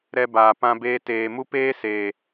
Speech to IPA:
ɾɛ˧ baː˨pã˧ beː˧ teː˨mu˦ peː˦seː˨

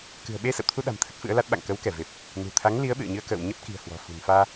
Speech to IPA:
kɨ̤˨˩ə̯ɓe˧ sə̰˧˨wt̪ʰu˧ɗa̤˨˩m t̪ʰə˦˥t̚fɨ̰˧˥ə̯la˦˥t̚ ɓa̰˧˨ŋkə˨˦wkɛ˧˩ ve˨˩p̚ | nṳ˨˩t̪ʰa˨˦ŋ li˨˦ə̯ɓɨ̰˧˨ə̯ɲɨ˧ə̯ kə̰ː˧˨wɲə˦˥p̚ ki̤˨˩ə̯hwɔ̤˨˩ fṳ˨˩nfaː˧

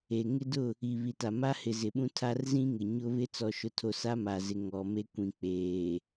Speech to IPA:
e˨ŋɪ˦dʊ˦˨ | i˨ βi˨ta˨ma˦ hɪ˨zɪ˨ɓũ˦ tʰa˦rzĩ˦ŋɪ˨ ɲʊ˦βɪ˦ t͡sɔ˨ʃʊ˨tʰo˨ sa˦ma˨zɪ˨ ŋɔ˨me˦kʷĩ˨k͡peː˨

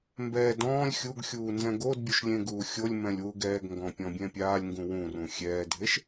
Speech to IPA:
mbɛːd ɔ̃ːlʲ xʲuɡxʲuː nzɛ̃ɡodbʲuʃ lʲẽɡuːxʲolʲmɛ̃lʲ wuɡɛːɡŋɡɔ̃ pʲɔ̃bʲɛ̃pʲaːlʲŋɡũ wũrũ xʲɛːdʱeʃ

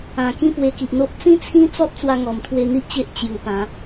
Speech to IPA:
ã˨˩ kĩ˥˧ pwe˧ki˨ʔn̪o˦ʔ t͡sĩ˦t͡sʰĩ˦t͡sɔ˦t̚ t͡swa˦ŋɔ˨˩m t̪ʰwe˧n̪i˦ʔ t͡ɕe˦ʔ t͡ɕju˨˩pã˨˦

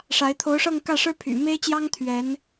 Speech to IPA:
ʂa˧˥ɪ̯ t̪ʰo˧˥ʊ̯ʂɤ˥˧ŋkä˥˩ʂɻ̩˥ pʰy̰˨˩me˥ɪ̯t͡ɕjɑ˥ŋ t̪ʰɥɛ˧˥n

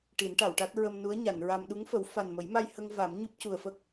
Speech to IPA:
ʈi˨˩˦nʈa˨˩˨wʈa˦˥t̚ ɹə˧mnu˧˥ə̯ ɲa˨˩˨nɹa˧m ɗu˧˥ŋfə˨˩˦w fa˨˩nmə˨˩˦jma˧j hə˧ŋ va˨˩˦mɲu˦˥p̚cu˨˩ə̯fə˦˥k̚

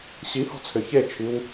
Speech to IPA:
ɕihɔ̤t͡sʰʏ çet͡ʃʰiw

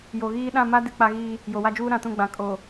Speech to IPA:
jo˨ɣiː˦ ɗã˦˨ma˦ dɪ˦ k͡pa˦ɣiː˦ | jo˨wa˦d͡ʒuː˦ ɾã˨tũ˦˨ɡ͡bã˨ kʼo˨

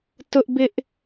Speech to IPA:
tʊ˦ʔbɪ˦ʔ

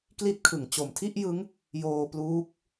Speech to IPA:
kli˦˥t̚kʰɯ˩˦ŋ t͡ɕo˩˦mtʰi˥˩ʔjɯ˦˥ŋ | joː˧pluː˦˥k̚

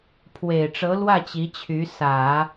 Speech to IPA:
pʰwe˨˩ɪ̯ʈ͡ʂɤ˧˥lwä˥˩ t͡ɕi˧˥t͡ɕʰy˧˥ sä˨˩˦

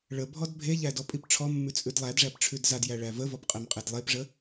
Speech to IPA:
ɭəbʱɔd bʱeʎæ dɔpʼipʈ͡ʂʰɔmːʉ t͡sʼʉdlˠædʐæp ʈ͡ʂʰʉdzadjæ ɭævəvɔp qʼɛmqʼedlˠepʐə

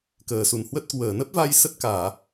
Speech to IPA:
kəː˧˩su˨˩nhwə˦˥t̚ kwəː˨˩nə˦˥p̚va˧j sə˦˥t̚kaː˧˩˨

